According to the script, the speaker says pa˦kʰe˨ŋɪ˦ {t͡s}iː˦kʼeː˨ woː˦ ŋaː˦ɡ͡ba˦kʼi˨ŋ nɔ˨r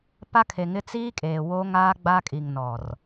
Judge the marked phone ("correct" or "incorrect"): correct